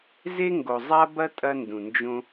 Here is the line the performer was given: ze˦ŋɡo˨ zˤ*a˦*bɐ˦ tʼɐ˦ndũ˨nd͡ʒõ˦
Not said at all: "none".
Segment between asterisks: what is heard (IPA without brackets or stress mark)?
a˦